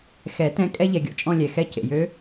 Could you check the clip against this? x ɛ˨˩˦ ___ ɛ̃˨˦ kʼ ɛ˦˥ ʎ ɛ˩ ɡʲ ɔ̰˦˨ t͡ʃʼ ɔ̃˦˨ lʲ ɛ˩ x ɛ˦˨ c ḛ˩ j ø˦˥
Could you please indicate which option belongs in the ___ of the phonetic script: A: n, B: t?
B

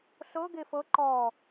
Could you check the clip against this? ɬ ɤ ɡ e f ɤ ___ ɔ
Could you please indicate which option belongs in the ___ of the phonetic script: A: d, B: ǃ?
B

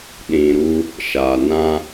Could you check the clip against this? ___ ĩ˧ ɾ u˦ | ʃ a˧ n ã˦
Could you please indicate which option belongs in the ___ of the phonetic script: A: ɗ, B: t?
A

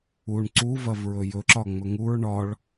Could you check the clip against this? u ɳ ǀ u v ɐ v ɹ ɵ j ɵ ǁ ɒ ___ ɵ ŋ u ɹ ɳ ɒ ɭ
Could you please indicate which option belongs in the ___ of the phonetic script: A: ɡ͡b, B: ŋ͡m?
B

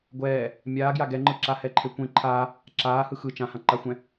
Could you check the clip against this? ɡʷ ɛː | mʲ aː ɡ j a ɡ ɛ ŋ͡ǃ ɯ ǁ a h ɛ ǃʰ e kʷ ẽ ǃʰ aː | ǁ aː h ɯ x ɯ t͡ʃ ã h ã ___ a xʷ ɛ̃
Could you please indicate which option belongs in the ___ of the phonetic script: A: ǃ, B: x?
A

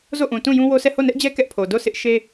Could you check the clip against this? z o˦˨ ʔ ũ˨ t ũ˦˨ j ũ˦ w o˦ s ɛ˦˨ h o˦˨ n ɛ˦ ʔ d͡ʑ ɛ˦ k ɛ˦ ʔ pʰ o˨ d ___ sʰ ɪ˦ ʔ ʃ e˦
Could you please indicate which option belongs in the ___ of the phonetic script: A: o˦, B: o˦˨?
B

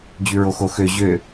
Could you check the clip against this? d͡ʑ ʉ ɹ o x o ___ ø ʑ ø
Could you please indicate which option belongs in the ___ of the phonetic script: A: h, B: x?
B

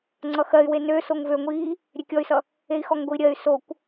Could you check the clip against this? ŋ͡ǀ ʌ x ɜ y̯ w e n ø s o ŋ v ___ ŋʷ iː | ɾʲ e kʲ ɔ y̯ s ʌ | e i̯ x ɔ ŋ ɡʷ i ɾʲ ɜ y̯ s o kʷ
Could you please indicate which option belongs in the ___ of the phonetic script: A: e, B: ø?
B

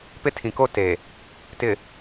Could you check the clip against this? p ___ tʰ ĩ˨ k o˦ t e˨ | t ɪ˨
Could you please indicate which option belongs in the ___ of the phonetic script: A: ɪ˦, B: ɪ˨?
A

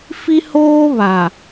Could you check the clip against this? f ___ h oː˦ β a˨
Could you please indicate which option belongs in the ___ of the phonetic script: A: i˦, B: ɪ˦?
A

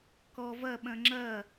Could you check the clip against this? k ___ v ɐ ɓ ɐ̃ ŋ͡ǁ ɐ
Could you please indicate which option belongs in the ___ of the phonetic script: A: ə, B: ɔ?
B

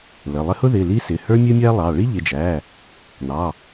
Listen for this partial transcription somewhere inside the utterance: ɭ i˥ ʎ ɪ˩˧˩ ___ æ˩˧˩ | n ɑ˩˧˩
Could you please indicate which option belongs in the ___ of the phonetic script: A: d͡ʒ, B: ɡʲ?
A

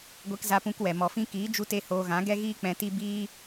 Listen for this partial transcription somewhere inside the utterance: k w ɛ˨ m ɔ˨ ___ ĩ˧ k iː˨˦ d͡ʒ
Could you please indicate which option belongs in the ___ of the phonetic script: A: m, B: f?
B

